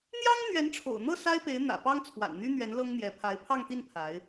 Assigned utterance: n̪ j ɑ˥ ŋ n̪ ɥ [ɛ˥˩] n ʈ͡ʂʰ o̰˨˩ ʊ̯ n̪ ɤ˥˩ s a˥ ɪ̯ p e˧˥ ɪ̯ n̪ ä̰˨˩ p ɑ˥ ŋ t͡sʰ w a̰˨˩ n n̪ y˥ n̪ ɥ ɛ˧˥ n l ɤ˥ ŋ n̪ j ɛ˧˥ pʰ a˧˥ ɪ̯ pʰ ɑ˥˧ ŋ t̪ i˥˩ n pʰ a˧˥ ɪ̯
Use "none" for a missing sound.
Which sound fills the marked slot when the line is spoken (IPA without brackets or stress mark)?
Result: ɛ˧˥